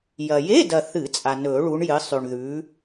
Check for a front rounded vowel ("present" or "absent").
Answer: absent